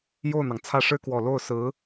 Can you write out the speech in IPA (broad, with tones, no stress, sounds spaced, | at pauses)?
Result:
j o˥˩ ʊ̯ n̪ ɑ˩ ŋ t͡sʰ ä˥˩ ʂ ɻ̩˥ k w ɔ˨˩ l o˥˩ ʊ̯ s ɹ̩˧˥